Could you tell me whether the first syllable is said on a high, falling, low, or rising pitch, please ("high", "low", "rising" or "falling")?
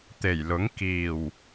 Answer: low